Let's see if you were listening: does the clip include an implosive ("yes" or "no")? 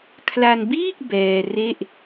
no